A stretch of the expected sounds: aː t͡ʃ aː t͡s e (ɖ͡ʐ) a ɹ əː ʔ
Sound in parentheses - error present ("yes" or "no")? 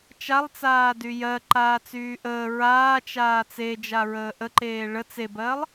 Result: yes